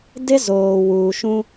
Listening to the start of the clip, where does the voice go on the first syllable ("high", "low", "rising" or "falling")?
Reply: high